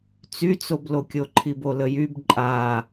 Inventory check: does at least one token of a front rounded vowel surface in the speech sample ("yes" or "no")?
yes